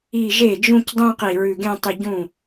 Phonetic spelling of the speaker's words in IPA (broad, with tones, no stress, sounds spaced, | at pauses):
i˧˩ ʒ e˥˩ d͡ʒ ũ˥˧ c dˤ ũ˥˧ q i˧˩ ɹ ʉ˧˩ ɡ ẽ˥˧ tˤ ɨ˧˩ ɟ ũ˥˩